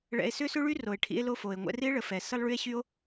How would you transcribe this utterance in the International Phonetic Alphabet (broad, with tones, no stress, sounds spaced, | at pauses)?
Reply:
ɭ ɛ̰˨ e̯ s ʏ˥ s ʏ˥ ɭ y˥ r o˩ e̯ ʈʰ ḭ˦ e̯ l o˦ f o˩ e̯ ŋʷ ɛ̰˦ r i˥ e̯ ɭ ə˩ f ɛ˩ s ə˥ lˠ ɭ y˥ e̯ ɕ y˥ o̯